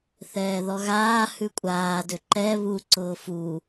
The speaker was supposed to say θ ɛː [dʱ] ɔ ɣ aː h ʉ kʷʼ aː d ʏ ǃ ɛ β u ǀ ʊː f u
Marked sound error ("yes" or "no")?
yes